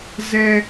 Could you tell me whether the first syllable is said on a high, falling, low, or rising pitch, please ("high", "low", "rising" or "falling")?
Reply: high